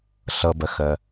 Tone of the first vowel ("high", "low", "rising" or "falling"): low